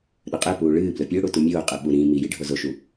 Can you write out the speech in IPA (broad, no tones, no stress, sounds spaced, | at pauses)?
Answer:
ɗ ɵ qʼ e p uː ɭ ɨː b l ɵ pʲ ɨ ʊ̯ ɽ u t u mʲ oː qʼ ɨ ɓ u ɾ ĩ m i j i ɖʱ o z o ʃ u